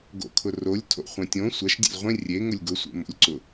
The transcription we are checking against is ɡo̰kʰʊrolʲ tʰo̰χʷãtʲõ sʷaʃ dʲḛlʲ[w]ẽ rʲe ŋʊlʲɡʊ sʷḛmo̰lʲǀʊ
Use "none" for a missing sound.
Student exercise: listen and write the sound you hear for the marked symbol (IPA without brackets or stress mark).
ʁʷ